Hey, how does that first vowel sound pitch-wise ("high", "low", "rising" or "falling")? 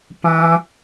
high